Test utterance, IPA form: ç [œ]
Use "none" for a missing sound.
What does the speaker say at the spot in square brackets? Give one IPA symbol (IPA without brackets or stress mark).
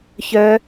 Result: œ